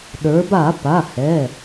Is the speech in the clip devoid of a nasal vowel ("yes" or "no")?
yes